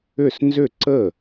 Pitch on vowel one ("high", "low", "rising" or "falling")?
falling